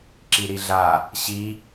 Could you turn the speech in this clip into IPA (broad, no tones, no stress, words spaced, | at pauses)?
ǁiɾiɮa | ɕi